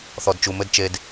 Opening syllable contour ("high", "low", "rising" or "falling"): low